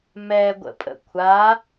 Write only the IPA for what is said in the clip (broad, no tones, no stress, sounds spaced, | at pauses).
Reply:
m ɛ ɡʷ ə̰ pʼ ə̰ kʷʰ a